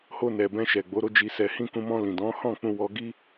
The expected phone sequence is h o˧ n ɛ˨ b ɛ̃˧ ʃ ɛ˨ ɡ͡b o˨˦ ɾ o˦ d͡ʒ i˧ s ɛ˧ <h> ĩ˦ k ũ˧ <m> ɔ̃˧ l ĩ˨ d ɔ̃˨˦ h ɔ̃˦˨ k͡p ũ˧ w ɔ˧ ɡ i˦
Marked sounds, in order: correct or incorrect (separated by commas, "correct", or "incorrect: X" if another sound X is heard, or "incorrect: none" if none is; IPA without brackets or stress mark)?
correct, correct